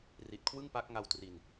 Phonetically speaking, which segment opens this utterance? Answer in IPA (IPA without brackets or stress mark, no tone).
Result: r